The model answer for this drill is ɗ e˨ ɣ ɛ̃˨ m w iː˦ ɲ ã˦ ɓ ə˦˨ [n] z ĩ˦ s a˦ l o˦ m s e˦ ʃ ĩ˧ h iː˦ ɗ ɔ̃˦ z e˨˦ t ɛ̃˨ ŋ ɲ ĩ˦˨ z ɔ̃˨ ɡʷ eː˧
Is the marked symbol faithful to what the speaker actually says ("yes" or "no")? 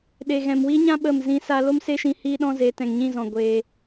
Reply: no